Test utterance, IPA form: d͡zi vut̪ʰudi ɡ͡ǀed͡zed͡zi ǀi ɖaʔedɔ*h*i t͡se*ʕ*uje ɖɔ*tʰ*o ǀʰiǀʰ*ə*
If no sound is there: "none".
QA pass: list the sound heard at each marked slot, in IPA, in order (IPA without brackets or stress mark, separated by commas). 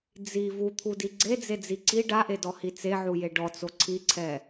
h, ʕ, t͡s, ɛ